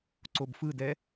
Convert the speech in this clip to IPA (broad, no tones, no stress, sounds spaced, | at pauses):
ǀ o b f ɯ d ɛ